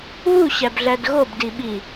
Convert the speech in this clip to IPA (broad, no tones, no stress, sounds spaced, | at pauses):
β u ɕ æ b ɮ æ d ɣ o b d i ɓ i